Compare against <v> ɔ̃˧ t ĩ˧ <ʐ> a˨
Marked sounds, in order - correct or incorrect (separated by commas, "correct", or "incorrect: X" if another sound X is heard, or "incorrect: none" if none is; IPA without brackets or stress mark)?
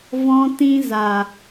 correct, incorrect: z